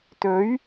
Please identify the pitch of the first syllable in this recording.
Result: rising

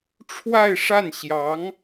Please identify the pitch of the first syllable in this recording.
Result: falling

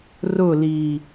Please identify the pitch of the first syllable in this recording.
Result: falling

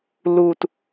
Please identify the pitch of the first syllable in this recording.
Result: falling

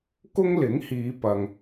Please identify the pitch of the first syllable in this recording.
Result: high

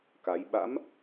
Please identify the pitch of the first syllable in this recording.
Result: rising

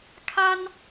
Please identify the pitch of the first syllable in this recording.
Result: high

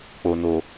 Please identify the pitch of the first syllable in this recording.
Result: low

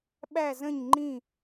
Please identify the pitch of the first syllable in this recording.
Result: falling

